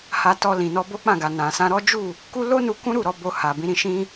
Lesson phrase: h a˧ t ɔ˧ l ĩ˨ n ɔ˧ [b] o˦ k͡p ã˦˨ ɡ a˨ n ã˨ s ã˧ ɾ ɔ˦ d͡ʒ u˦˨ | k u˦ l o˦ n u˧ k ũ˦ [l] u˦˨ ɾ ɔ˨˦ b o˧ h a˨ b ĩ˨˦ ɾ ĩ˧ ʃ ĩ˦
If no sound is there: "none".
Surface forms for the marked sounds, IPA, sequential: b, ɾ

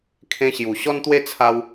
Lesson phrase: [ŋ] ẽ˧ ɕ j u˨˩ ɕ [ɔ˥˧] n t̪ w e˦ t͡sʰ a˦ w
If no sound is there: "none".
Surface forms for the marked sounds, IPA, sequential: kʰ, ɔ˦

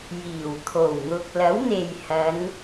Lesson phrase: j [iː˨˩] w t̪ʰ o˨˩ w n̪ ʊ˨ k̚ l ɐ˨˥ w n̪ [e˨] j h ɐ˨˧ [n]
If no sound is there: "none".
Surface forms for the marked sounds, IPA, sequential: iː˨˩, e˨, n

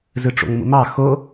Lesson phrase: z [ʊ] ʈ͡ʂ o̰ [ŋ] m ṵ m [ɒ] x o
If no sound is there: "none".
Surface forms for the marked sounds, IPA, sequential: ɯ, ŋ, ɑ

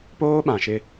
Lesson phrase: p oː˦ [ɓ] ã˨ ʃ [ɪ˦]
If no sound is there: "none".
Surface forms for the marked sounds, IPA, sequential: ɓ, ɪ˦

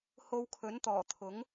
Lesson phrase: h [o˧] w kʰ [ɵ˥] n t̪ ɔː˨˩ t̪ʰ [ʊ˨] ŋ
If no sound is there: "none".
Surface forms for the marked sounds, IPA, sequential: o˧, ɵ˨˥, ʊ˨˥

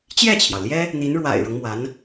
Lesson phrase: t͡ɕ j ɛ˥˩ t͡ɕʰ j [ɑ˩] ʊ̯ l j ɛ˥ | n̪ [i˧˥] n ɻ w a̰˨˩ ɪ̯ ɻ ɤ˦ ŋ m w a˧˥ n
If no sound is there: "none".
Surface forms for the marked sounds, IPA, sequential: ɑ˩, i˧˥

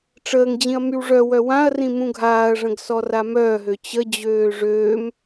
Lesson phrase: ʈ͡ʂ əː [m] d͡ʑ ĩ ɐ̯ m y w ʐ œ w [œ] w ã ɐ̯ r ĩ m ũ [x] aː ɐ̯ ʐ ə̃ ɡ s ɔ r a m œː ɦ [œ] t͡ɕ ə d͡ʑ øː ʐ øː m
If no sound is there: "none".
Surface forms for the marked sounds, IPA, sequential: ŋ, œ, ɡʱ, ø

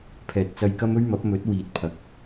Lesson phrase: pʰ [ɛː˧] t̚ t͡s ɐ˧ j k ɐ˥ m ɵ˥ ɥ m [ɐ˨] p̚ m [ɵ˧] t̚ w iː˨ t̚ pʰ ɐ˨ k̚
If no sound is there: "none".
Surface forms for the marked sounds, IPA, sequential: ɛː˨, ɐ˨˥, ɵ˨˥

